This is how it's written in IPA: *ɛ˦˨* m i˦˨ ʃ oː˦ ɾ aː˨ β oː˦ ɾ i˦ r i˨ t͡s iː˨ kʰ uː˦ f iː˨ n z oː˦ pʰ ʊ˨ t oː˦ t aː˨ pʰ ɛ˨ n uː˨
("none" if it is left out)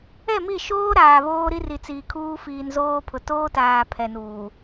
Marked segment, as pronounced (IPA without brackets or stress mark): ɛ˦˨